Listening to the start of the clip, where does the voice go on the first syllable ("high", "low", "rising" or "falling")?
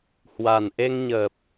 low